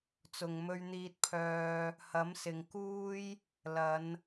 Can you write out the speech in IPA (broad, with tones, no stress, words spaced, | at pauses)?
t͡sʊ˨ŋmɵ˧ɥn̪iː˧t̚pʰœː˧ | hɐ˨˥msɪ˨ŋ kuː˥j | lɐ˨˧n